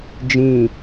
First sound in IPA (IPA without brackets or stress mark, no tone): d͡ʒ